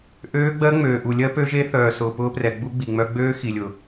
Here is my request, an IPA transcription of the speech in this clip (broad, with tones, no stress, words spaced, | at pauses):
ʔøː˦˥ɡ͡bɜ˦˥ ŋ͡møː˨ʔu˨ lʲɜ˦˥pø˦˥ʒe˦˥ θœː˨sʊː˨pʊː˦˥prɛ˨ ɡ͡bu˦˥ɡ͡bi˨ŋ͡mœ˦˥ ɡ͡bøː˦˥xi˨lʲʊ˨